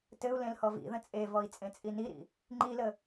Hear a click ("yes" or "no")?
yes